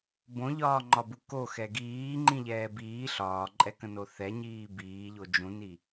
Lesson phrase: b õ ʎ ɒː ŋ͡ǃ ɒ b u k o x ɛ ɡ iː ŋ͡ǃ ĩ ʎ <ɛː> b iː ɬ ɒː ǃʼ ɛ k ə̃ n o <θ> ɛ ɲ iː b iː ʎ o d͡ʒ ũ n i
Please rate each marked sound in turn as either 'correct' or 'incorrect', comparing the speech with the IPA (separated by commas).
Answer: correct, correct